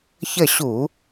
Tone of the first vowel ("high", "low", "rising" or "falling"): falling